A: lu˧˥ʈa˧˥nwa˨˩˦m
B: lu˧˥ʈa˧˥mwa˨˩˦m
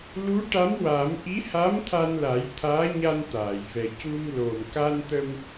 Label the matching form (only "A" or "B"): B